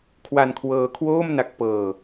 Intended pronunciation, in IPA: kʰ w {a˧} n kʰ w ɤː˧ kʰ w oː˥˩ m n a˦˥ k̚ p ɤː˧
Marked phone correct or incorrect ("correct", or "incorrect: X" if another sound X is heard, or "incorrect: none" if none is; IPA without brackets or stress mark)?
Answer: correct